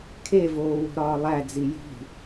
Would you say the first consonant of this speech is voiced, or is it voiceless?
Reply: voiceless